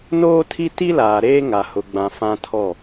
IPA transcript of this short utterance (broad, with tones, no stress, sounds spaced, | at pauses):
n oː˦ tʰ i˦ t i˦ l aː˨ ɾ eː˦ ŋ a˨ h ʊ˨ ɡ͡b ã˨ f ã˦ tʰ ɔ˦˨